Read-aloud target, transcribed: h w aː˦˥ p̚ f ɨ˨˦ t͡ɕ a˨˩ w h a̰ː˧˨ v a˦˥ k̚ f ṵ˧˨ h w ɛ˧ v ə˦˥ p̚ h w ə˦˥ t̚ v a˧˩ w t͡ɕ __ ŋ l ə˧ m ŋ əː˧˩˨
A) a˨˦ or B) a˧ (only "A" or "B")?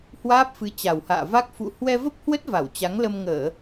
A